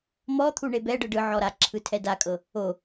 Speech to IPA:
m ɔ t̪ʰ u ɳ e b ɛ ɖ ɯ ɖ ɯ ʕ ɔ ɾ a ǁʰ ɯ tʰ ɛ d a kʼ ɤ | o

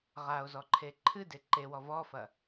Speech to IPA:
ʁ a o̯ z ɔ ǃʰ e ǃʰ ɨ d e ǃ e w ɔ v ɔ f ɐ

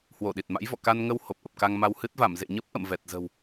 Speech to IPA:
h w o˧˩ ɗ i˨˩ t̚ m a̰˧˥ j v ɔ̰˧˨ k a˧ n ŋ ə˧ w h o˨˩ p̚ ʔ ə˨˩ p̚ k a˧ ŋ m a˧ w h ɨ˦˥ t̚ v a˧˩ m z ḛ˧˨ ɲ ə˦˥ p̚ ʔ ə̰˧˨ m v ɛ˨˩ t̚ z ə̤˨˩ w

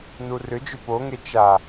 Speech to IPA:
n u r ʏ d͡ʒ ʏ p o ŋ e t͡ʃ a

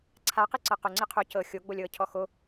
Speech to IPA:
ǀʰ a q i ǀ ɤ q o ŋ͡ǀ e qʰ o c ɤ xʲ o ɡ͡b o lʲ ɤ cʰ ɔ x o

